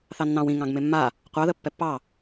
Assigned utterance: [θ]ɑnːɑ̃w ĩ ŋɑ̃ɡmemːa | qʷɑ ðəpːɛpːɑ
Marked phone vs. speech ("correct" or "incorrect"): correct